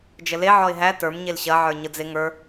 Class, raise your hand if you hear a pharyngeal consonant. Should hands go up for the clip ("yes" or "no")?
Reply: yes